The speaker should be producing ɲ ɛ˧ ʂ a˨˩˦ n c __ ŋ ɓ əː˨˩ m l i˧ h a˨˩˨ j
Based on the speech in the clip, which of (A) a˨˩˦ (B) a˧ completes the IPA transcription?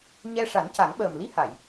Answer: A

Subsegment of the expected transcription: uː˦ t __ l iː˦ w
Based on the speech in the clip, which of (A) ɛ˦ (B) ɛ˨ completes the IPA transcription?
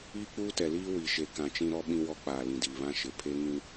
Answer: B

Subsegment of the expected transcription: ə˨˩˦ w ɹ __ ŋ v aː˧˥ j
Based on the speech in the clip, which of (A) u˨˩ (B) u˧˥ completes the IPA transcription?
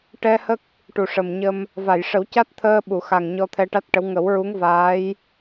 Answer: B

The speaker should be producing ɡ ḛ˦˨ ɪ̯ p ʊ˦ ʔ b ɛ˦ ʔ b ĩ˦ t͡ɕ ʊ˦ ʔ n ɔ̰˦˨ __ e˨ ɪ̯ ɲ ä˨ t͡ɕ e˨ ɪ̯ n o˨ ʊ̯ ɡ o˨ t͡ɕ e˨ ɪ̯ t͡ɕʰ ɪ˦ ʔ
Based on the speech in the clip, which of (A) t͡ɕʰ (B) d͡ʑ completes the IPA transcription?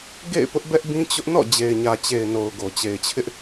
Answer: B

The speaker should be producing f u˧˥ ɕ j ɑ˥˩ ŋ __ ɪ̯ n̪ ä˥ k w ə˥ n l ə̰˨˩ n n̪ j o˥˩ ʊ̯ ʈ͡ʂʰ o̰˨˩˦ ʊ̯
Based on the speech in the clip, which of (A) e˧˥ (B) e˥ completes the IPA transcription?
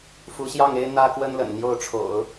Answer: B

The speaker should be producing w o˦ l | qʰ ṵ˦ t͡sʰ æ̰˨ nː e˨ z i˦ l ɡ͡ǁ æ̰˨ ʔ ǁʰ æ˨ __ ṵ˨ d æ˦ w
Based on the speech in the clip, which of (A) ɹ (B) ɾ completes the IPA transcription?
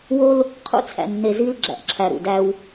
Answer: B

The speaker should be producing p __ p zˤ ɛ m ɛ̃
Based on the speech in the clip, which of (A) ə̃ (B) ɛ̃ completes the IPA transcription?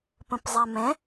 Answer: A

